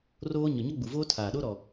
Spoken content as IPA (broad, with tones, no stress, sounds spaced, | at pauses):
r oː˦ ɲ ɔ˨ ɲ ɔ˦ ɡ͡b u˨ v oː˦ tʰ aː˨ ɗ o˦ ɾ ɔ˨